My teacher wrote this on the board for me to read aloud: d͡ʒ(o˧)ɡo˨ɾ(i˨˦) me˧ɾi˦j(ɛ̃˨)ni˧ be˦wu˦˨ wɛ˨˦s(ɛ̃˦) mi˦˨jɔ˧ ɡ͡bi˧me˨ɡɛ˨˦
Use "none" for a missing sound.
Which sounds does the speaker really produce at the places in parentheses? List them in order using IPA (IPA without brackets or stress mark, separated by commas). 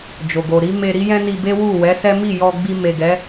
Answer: o˨, i˨˦, ɛ̃˦, ɛ˦